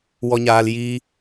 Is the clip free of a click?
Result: yes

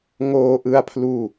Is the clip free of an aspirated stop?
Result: no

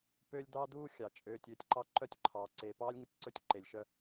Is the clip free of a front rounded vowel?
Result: no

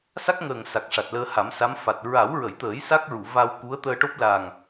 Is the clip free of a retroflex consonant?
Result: no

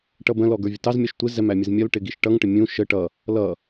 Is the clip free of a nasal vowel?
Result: no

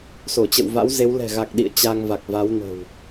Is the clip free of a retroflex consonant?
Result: yes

